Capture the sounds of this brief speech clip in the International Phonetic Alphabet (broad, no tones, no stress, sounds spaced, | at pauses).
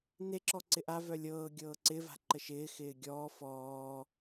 n e ǁ ɔ ǀ ɪ ʔ a v œ lʲ ɤː ɡʲ ɤː ǀ ɪ v a̤ ǃ ə ʃ ɪː x ɪː ɡʲ ɔː f ɔː